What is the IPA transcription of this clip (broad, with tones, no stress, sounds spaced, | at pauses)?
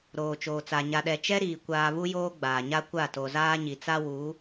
ɾ oː˨ t͡ʃ oː˨ t͡s a˨ ɲ a˨ ɗ ɛ˨ t͡ʃ ɛ˦ ɾ iː˨ kʷ aː˨ β u˦ j oː˦ ɡ͡b aː˨ ɲ a˦ kʷ a˦˨ t o˨ z aː˦ ɲ i˨ t͡s a˦ w u˨˦